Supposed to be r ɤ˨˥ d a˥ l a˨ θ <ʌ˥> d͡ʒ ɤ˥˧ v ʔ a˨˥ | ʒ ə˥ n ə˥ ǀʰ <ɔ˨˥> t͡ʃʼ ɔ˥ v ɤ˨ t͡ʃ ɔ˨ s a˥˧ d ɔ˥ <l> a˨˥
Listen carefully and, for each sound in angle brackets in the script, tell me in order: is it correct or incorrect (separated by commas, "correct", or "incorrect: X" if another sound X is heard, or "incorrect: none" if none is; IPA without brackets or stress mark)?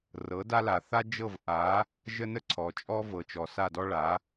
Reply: incorrect: a˥, incorrect: ɔ˨, incorrect: ɭ